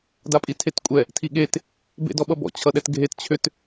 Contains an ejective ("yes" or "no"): yes